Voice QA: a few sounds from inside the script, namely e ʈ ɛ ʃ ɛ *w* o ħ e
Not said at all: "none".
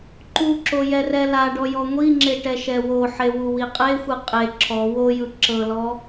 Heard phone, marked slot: w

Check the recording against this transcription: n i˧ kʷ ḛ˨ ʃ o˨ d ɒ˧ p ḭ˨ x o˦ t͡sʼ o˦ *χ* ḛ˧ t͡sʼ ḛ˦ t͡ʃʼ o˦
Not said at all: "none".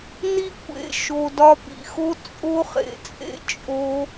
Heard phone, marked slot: χ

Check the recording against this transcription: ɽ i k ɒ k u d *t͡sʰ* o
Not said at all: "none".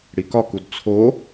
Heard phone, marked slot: t͡sʰ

